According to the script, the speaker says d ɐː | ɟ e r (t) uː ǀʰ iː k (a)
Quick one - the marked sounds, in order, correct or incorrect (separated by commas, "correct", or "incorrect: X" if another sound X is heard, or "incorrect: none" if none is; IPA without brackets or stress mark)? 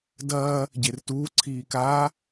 correct, correct